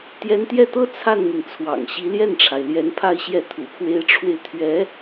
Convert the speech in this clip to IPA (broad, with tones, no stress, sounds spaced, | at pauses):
t̪ j ɛ˧˥ n t̪ j ɛ˥˩ t̪ ɤ˥ t͡sʰ a˥˩ n n̪ i˩ ŋ t͡sʰ w ɑ̰˨˩ ŋ ɕ i˧˥ l j ɛ˥˩ n ʈ͡ʂʰ a˩ ɪ̯ l j ɛ˧˥ n pʰ a˥˧ ɪ̯ ɕ j ɛ˥˩ t̪ʰ ṵ˨˩ pʰ w e˧˥ ɪ̯ ʈ͡ʂʰ w e˧ ɪ̯ t̪ʰ ɥ ɛ˧˥